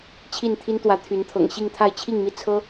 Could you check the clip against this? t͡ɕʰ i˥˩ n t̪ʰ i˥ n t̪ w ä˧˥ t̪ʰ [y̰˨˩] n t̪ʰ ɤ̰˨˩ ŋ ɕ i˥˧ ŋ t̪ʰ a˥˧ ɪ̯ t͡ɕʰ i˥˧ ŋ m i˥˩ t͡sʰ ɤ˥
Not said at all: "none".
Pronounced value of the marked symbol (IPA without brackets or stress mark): y˧˥